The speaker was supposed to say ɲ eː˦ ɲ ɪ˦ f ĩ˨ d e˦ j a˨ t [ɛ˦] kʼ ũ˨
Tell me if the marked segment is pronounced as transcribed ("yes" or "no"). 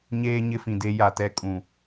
yes